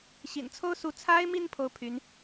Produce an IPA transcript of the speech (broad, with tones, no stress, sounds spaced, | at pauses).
ɕ ḭ˨˩ n t͡sʰ o˥ ʊ̯ s u˧˥ t͡sʰ a˥ ɪ̯ m i˥˧ n pʰ o˥˩ ʊ̯ pʰ y˧˥ n